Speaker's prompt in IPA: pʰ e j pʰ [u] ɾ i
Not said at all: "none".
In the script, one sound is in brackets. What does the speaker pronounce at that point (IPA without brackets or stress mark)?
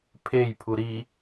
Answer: u